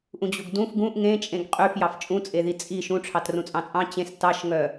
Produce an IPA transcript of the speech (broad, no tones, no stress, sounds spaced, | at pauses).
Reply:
ʔ ũ d͡ʑ u ɡ d ũ f ɡ ũ ʔ ŋ ẽ t͡ʃʼ ẽ ɡ qʼ y f j ɑ f t͡ʃʼ ũ t͡sʼ e ð i t͡sʼ i ʃ ũ ʈ͡ʂʰ ɑ t r ũ t͡sʼ ɑ̃ t͡sʼ ɑ̃ t͡ɕ ẽ s t ɑ ʃ ŋ œ